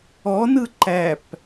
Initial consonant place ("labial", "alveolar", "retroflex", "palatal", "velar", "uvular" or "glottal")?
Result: alveolar